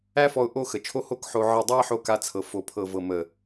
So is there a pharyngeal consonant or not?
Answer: yes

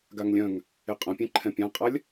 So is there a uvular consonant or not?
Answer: yes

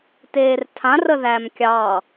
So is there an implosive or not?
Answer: no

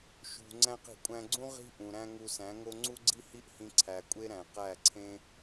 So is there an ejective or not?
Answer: yes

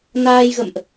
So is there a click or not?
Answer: no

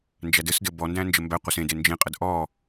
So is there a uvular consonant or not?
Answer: yes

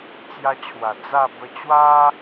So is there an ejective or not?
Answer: no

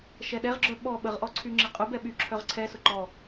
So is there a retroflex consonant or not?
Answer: no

